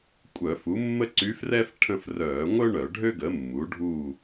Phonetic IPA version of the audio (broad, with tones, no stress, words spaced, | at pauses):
kʷʼœː˧˩˧fu˩˥mːə˥ ǀy˧˥frɛ˥f ʈʰə̃˦˨frœː˧˩˧ŋʷœ˥ ɳœ˧˩˧ɖʱø˥ɡə˩˥mːu˩˥ ɖʱu˦˨